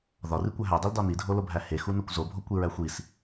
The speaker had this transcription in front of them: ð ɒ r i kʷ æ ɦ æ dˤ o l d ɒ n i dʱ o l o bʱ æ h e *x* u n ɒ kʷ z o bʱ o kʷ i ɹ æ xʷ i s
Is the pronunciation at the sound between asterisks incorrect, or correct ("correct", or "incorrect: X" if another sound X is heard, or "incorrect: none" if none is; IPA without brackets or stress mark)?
correct